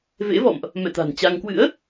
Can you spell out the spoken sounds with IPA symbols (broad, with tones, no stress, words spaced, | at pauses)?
vḛ˧˥vɔ̰˧˨mʔ | mɛ̰˧˨t̪a̤˨˩n t͡ɕa˧ŋ kwɨ̰˧˥ə̯